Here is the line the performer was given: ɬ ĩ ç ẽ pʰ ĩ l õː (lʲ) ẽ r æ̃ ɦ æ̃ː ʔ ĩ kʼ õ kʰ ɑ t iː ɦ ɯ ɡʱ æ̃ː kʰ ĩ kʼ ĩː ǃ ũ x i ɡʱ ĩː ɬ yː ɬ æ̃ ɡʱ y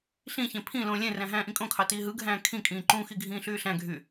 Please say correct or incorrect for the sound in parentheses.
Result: correct